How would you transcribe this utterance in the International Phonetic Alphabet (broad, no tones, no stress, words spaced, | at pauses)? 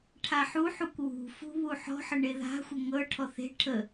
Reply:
ʈʰaħuħukʷ wṳfṳ βuħɔ̤ħə ɳeða̤xʷə ŋɤʈʰɔ θe̤ ʈʰə